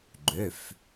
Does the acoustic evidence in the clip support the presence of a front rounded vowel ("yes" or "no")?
yes